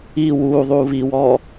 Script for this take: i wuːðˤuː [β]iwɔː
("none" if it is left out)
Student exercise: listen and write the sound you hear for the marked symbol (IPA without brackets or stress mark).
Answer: β